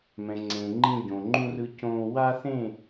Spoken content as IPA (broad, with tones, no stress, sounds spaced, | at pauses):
m ɛ̃˨ ŋ͡ǀ ẽː˨ ŋ͡ǃ ĩ˦ ɟ õː˨ ŋ͡ǃ ũ˦ r ɯ˦ c õː˦ w a˦ θ ẽ˦˨